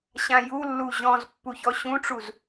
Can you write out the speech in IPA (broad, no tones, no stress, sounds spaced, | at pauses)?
ɕ ã j u lː u ʑ ɔ̃ z pː u ç ɔ ɕ ũ ʈ͡ʂ u z